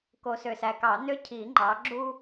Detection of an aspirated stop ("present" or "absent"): present